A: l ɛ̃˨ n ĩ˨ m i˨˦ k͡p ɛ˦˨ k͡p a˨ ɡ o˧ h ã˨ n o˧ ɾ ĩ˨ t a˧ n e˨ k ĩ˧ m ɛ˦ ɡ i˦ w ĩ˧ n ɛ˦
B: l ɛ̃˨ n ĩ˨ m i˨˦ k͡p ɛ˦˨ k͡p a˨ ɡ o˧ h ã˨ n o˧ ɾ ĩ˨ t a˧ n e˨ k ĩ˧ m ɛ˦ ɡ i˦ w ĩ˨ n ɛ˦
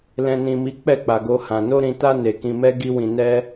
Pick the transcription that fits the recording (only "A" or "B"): A